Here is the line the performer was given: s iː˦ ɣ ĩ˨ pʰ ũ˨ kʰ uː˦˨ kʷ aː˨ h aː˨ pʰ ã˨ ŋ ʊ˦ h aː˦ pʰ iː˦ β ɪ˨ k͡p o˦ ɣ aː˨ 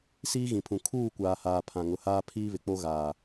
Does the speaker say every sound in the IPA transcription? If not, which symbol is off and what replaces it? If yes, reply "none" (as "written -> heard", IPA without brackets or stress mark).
ʊ˦ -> ʊ˨˦